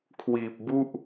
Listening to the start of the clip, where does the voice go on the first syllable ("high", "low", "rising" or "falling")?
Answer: low